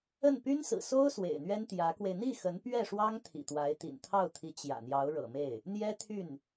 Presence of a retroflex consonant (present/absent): present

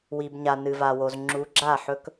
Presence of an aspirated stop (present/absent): absent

